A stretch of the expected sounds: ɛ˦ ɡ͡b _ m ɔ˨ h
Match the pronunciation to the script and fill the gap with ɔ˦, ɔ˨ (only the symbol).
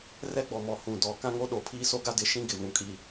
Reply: ɔ˨